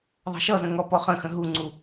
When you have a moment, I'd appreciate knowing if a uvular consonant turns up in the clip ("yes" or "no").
yes